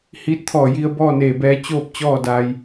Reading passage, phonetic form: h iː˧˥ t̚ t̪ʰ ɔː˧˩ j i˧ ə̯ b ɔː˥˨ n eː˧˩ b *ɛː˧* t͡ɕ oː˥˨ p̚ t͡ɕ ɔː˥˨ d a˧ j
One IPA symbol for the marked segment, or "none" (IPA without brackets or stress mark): ɛː˧